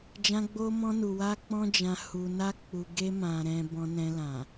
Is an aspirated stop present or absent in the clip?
absent